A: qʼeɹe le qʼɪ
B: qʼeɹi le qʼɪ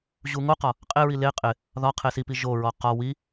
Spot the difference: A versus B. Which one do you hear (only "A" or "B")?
B